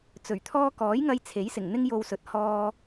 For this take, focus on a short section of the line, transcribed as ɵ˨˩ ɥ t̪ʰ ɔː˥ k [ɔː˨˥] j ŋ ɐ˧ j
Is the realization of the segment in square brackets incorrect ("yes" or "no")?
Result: no